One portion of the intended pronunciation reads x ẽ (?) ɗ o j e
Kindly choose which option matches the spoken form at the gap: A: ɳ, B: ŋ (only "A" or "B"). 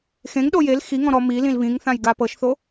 B